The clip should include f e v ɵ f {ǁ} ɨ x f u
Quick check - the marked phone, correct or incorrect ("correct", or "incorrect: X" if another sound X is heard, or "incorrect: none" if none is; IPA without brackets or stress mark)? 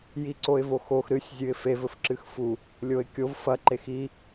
correct